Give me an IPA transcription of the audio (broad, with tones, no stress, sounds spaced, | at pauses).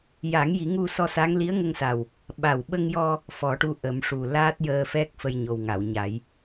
j a˨˩˦ ŋ j i˨˩˦ ŋ u˧ s ɔ˧ s a˧˥ ŋ l i˧˥ ə̯ ŋ ə˧ ŋ s a˨˩ w | ɓ a˨˩ w ɓ ə˧ ŋ j ɔ˧ | f ɔ˨˩˦ ʈ u˧ ʔ ə˨˩˦ m ʂ u˨˩ l aː˦˥ t̚ j əː˧ f ɛ˦˥ k̚ f ə˧ j ɲ o˨˩ w ŋ a˨˩˨ w ɲ a˨˩˦ j